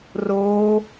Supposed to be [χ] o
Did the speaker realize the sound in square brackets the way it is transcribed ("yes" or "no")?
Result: no